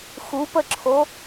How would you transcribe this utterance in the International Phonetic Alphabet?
xupəǁʰo

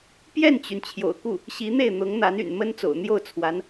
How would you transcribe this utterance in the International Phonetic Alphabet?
pjɛ˥˩nt͡ɕy˩n t͡ɕʰjo̰˨˩ʊ̯ku˥˩ | ɕi˧˥n̪e˥˩ɪ̯n̪ʊ˧˥ŋn̪a˧˥n y̰˨˩nmə˥nt͡so̰˨˩ʊ̯ n̪jo˥˩ʊ̯t͡sʰwa˧˥n

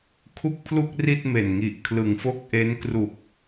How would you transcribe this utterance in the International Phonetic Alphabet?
kʰu˥˩k̚pʰlu˥˩k̚ ri˥˩t̚me˨˩nŋi˨˩ʔ kʰlɯ˨˩ŋfo˥˩k̚ʔe˦˥n kru˨˩k̚

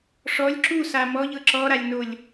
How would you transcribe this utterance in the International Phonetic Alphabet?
ʂɔlʲ ǁusa mɔʎɤ ǁɔɾalʲnolʲ

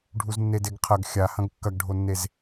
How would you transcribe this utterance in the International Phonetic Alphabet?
ɖʱuznːedeɡqʰɐɡ xʲahɐ̃ɡ kːɐɡɖʱonːez

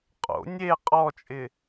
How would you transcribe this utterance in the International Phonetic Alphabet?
qʼo̰ nʲe qʼɔt͡ʃʼɪ

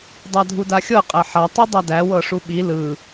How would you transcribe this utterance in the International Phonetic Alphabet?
dˤadʱudaxʲɤ qʼæħa tˤidˤædæ wɤʂuɓi lɯ

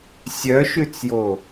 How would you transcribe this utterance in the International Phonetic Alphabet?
sʲœʃʉt͡sjo

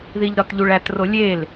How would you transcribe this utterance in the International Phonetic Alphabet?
ðiʎɾɒtʎuɭæt rolʲel

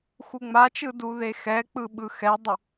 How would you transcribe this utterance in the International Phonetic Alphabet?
xuŋ͡mat͡ʃɯ duðexɛk͡pɯ ɓɯxɛdˤu

